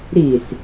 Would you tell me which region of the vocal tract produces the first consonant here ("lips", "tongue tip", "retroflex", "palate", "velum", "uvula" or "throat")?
tongue tip